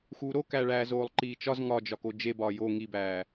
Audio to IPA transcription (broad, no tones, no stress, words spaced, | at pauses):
xuːɾokæɭæː zoːlˠǃiːt͡ʃɒz ŋɒd͡ʒɒko d͡ʒebɒː jo ŋibæː